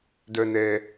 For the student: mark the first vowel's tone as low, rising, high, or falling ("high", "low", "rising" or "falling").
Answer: low